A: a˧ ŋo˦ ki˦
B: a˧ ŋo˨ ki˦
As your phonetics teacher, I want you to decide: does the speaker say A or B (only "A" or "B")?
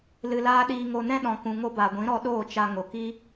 B